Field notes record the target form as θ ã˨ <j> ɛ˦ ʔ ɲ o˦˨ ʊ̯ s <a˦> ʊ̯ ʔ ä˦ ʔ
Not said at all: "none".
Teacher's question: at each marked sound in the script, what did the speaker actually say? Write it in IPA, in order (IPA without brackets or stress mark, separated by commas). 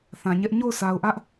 ɲ, a˨